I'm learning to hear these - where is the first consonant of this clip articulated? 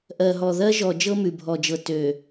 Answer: throat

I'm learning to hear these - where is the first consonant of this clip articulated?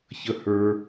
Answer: palate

